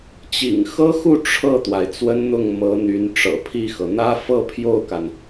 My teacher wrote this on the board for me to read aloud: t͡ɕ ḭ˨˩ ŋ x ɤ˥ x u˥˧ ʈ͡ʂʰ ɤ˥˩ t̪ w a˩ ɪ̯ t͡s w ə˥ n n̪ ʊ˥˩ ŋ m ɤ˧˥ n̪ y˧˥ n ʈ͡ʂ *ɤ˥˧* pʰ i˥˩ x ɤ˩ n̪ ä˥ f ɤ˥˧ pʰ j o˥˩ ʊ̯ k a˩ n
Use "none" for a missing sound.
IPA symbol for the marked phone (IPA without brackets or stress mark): ɤ̰˨˩